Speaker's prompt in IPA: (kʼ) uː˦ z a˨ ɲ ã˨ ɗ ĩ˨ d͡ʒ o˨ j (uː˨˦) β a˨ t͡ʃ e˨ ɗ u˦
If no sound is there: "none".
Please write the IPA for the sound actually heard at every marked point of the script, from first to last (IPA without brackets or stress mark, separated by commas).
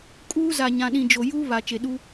kʼ, uː˦